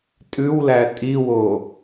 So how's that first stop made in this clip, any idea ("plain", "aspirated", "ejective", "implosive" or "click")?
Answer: ejective